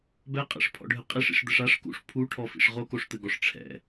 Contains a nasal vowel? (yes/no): no